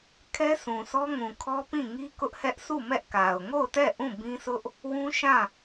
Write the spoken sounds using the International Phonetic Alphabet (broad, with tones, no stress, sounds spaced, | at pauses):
kʰ ɛ˦ sʰ ũ˨ sʰ ɔ˦ ŋ ũ˨ kʰ ɔ˦ p ĩ˦˨ ŋ i˦ k ʊ˦ ʔ h ɛ˦ ʔ sʰ u˦˨ m ɛ˦ ʔ k a˨ ʊ̯ ŋ o˦˨ ʊ̯ t ɛ˦˨ ʔ ũ˦˨ b ĩ˦ sʰ ʊ˦ ʔ | w ũ˦ ʃ ã˦˨